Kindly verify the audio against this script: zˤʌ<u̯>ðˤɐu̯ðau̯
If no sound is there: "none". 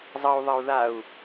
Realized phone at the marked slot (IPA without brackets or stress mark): u̯